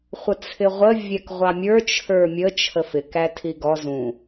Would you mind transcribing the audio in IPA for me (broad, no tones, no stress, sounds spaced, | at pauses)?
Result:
χʷ ə t͡sʰ ɪ ʁʷ ə vʲ ɛ k ʁʷ ɑ mʲ ə˞ t͡ʃʰ ə˞ mʲ ə t͡ʃʰ ə f ɪ k æ tʰ i ɡ ɔ z ũ